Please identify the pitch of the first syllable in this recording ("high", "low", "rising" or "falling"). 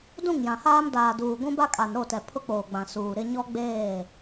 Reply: falling